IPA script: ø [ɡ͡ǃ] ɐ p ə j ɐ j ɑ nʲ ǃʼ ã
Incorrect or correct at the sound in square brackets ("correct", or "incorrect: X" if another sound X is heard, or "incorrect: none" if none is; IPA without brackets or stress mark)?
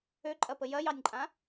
incorrect: ǃʼ